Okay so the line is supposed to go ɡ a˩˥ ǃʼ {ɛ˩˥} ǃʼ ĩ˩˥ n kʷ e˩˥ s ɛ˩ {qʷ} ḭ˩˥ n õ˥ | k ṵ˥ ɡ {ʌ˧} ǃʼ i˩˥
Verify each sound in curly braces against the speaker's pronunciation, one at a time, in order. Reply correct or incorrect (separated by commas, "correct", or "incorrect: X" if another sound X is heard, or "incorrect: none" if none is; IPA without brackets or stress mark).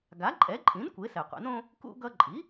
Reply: correct, correct, correct